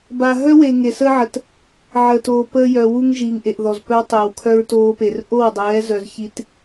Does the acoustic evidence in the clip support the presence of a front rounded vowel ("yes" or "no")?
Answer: yes